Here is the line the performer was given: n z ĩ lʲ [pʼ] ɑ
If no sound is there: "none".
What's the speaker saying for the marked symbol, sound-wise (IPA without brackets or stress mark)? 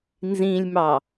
m